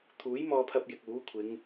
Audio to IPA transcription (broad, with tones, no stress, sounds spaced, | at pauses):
t̪ʰ uː˨˥ j m ɔː˧ pʰ ɐ˧ p̚ j ɪ˨ k̚ uː˨˥ kʷʰ ɪ˨˧ ŋ